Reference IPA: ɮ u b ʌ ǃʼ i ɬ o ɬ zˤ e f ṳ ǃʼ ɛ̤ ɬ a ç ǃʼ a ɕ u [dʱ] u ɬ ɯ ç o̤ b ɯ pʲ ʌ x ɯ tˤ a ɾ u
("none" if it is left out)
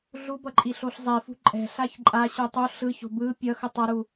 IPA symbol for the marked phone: tˤ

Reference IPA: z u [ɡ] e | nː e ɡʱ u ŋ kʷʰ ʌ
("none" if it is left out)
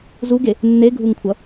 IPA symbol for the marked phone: ɡ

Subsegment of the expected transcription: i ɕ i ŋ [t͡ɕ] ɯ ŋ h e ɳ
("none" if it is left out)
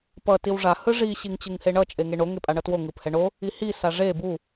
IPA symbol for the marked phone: t͡ɕ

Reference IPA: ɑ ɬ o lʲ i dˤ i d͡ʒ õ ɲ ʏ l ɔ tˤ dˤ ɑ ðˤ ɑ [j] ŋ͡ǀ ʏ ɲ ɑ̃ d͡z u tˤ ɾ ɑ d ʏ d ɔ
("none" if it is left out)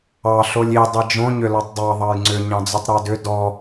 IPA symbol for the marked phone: j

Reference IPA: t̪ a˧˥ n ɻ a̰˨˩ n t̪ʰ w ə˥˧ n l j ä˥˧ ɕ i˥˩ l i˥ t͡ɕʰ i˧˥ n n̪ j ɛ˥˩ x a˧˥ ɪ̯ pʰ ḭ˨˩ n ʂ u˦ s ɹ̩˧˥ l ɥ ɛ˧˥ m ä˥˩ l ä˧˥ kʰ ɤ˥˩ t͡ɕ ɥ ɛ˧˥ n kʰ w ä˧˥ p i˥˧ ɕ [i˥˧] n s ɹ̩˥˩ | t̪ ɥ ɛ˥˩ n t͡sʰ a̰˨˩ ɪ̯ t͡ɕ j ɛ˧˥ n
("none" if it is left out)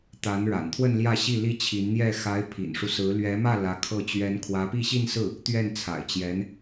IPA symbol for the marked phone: i˥˧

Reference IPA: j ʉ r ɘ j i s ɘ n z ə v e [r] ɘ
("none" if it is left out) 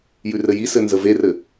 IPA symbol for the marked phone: r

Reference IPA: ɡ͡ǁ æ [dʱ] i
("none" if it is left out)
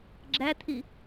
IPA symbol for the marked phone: t̪ʰ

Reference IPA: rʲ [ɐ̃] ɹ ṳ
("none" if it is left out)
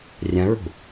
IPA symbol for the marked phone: ɐ̃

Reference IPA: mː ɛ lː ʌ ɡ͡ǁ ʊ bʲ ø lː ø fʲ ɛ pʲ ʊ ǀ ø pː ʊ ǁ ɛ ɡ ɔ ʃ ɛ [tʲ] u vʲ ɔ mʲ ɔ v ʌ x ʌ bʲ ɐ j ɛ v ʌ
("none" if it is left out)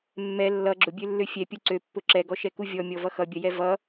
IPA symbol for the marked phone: k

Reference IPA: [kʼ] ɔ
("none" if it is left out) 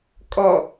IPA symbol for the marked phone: kʼ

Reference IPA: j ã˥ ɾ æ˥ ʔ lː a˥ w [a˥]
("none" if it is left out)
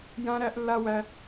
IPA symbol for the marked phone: æ˥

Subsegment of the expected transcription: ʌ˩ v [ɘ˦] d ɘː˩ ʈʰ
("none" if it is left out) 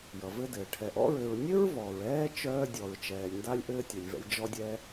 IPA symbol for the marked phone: ɘ˦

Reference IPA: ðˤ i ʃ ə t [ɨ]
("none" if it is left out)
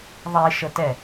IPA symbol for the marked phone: ɛ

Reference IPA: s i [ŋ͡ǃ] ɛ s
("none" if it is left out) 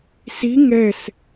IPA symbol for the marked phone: ŋ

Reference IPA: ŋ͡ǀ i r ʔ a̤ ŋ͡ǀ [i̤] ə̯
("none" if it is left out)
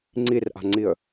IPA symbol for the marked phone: i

